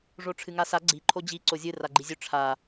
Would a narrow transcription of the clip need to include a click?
yes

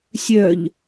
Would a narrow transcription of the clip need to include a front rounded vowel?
yes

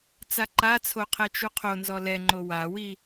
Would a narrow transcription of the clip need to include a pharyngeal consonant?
no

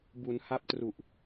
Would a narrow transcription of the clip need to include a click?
no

